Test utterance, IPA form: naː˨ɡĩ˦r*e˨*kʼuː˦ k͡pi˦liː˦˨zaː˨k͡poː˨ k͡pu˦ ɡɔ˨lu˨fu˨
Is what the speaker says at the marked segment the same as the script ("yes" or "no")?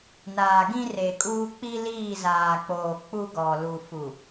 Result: yes